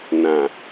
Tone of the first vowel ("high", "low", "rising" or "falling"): low